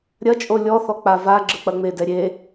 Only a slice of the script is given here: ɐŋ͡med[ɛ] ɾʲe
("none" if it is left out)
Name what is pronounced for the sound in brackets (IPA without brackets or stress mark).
ɛ